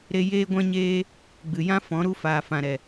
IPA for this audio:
ɾ e˦ j eː˦ ɡʷ ɛ̃˦ ɲ eː˦ | ɡ͡b ɨ˨ j ã˦ f ɔ̃˨˦ ɾ u˦ f aː˨ f ã˨ ɾ ɛ˨

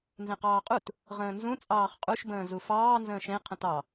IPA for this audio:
n z ẽ q ɑː qʼ u t | ʁ ə̃ː n z ũ t͡sʼ ɑː χ qʼ u ʃ b ə̃ː z u f ɑː n z ə̃ː ʃ ẽ qʰ ə̃ t ɑ

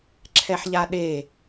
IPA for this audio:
ǁʰ ɛ ħ ʎ a ɗ e

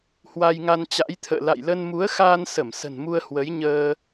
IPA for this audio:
h w a˧ j ŋ a˧ n t͡ɕ a̰˧˥ j t̪ʰ ə̰ː˧˨ l a̰˧˨ j l ə˧ n m u˨˦ ə̯ x aː˧ n s ə˧˩ m s ə̤˨˩ n m u˧ ə̯ h w ə˨˦ j ɲ əː˧

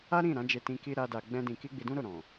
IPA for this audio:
a˦ ɾ ĩ˦˨ ɾ ã˨˦ d͡ʒ e˧ t ĩ˧ k i˦ ɾ a˦ d a˧ ɡ͡b ɛ̃˦ d ĩ˧ k i˦ ɡ͡b i˧ d ũ˦ ɾ o˦˨ ɾ ɔ̃˨

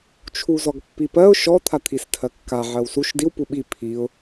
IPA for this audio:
t͡ʃʰ u z ɔ ɡ pː i p ɜ ʊ̯ ʃ ɔ t̪ʰ a t̪ʰ i s tʰ ɜ kː a ʕ ɜ w s u ʃ d i w p u ɓ i pʰ i ʊ̯

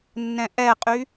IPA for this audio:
nː ɛ̃ ʔ ɛ qʼ y

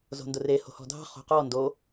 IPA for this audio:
z o̤ n d ʊ r e h o̤ h ɔ̤ dʱ ɑ̤ χ o̤ q ɔ n d o

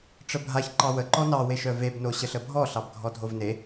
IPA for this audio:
ʈ͡ʂ ə bʱ a ç ǃ ɑ w ə ǃ ɔ n ɑ w e ʃ œ v e b n o ɕ ə ɬ ə bʱ ɔ ɬ ɑ b ɡʱ ɔ dʱ o v n e

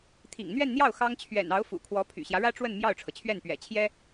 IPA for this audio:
t̪ʰ ḭ˨˩ ŋ n̪ ɥ ɛ˥˧ n n̪ j ɑ˥˩ ʊ̯ x ɑ˥ ŋ t͡ɕʰ ɥ ɛ̰˨˩ n ɑ˧˥ ʊ̯ f ṵ˨˩ kʰ w ɔ˧˥ pʰ y̰˨˩ ɕ j ä˦ ɻ ä˥ ʈ͡ʂ w ə˥˧ n m j ɑ˥˩ ʊ̯ ʈ͡ʂʰ ɤ˩ t͡ɕʰ ɥ ɛ˥˩ n p ɥ ɛ̰˨˩ t͡ɕʰ j ɛ˥

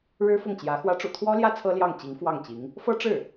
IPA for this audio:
ɻ ɻ̩˥ f ʊ˥˩ ŋ t͡ɕ j ä˧˥ x w ä˧˥ ʈ͡ʂ ṵ˨˩ t̪ʰ w ɔ˥ l j ä˥ t͡sʰ ɤ˥ l j ɑ˥˩ ŋ t͡ɕ i˧˥ ŋ f w ɑ˥˩ ŋ t͡ɕ i˧˥ ŋ | f ɤ˥ ʈ͡ʂ ɻ̩˥˩

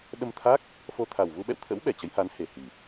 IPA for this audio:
ɗ ə˧ m t̪ʰ a˦˥ k̚ | f o˧ t̪ʰ a˨˩ w v u˧ ɓ ɛ̰˧˨ w t̪ʰ ə̰˧˥ w ɓ ɛ˧˩ t͡ɕ ə˨˦ j h a˨˦ n h e˨˩ h i˨˩

